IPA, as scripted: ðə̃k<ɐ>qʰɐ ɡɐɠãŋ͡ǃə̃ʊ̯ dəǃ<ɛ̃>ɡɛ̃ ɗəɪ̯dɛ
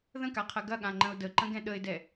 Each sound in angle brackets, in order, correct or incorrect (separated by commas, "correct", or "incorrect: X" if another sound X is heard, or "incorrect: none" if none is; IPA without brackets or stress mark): incorrect: a, incorrect: ə̃